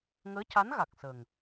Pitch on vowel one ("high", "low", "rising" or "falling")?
rising